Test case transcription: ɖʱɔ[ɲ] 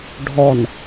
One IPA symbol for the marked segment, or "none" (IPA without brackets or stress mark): n